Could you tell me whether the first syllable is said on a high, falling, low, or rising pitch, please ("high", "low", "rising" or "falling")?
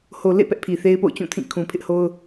low